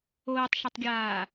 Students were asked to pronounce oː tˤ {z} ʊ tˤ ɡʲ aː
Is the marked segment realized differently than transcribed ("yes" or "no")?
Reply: yes